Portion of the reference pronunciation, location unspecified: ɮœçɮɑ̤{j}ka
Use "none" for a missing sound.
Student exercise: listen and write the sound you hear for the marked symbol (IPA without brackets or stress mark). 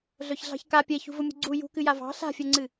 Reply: ç